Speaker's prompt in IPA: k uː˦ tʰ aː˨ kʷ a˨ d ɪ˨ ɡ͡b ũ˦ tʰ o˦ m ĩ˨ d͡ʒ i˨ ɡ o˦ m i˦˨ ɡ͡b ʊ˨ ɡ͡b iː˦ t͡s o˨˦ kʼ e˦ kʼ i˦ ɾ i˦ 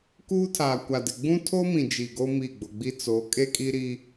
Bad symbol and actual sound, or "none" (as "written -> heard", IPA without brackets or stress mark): iː˦ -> i˦